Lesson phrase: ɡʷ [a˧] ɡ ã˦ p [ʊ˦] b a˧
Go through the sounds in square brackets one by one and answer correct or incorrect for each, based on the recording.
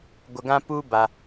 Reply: incorrect: ə˧, incorrect: u˦

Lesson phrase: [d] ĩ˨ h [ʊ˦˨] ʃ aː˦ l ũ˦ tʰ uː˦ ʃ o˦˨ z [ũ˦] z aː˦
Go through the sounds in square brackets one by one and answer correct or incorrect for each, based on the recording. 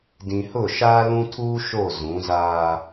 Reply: correct, correct, incorrect: ũ˨˦

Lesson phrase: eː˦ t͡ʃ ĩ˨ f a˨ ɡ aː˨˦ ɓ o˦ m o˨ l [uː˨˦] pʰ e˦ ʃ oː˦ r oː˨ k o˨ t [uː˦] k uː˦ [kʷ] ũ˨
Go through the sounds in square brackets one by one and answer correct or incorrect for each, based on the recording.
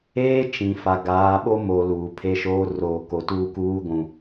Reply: incorrect: uː˨, correct, incorrect: ɡʷ

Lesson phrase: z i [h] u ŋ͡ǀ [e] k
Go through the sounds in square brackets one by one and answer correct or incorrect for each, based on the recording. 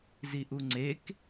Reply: incorrect: ʔ, correct

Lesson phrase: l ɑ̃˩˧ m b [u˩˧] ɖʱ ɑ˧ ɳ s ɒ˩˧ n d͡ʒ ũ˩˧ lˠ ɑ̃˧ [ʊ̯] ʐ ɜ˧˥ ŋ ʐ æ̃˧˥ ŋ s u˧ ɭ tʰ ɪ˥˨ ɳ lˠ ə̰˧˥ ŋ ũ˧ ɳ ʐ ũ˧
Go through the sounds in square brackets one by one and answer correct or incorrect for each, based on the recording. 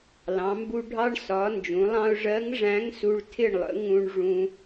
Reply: incorrect: u˧, correct

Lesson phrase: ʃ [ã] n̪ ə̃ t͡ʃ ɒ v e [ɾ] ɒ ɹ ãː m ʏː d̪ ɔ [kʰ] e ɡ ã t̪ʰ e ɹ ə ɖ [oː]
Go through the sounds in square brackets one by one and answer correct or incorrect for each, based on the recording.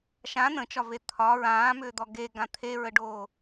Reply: correct, incorrect: t̪ʰ, incorrect: ɡ, correct

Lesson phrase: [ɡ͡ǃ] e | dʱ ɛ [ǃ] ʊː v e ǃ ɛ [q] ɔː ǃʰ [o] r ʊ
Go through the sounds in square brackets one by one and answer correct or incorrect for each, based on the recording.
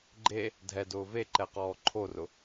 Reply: correct, incorrect: d, correct, correct

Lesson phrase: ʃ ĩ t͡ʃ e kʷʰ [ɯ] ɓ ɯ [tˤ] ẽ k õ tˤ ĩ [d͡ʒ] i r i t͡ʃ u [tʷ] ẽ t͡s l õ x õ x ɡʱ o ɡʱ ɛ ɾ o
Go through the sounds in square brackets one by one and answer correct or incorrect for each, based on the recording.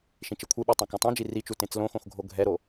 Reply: correct, correct, correct, incorrect: t

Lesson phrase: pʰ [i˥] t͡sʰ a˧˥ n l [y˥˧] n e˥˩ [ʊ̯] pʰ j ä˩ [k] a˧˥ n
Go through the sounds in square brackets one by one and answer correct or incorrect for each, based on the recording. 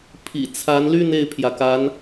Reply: incorrect: ḭ˨˩, correct, incorrect: ɪ̯, correct

